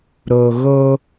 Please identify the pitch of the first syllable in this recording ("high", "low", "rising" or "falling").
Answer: low